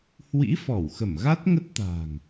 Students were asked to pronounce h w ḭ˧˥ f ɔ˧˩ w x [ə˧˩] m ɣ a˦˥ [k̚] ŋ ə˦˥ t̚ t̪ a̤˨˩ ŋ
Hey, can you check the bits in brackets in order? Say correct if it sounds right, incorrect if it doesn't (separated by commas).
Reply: correct, incorrect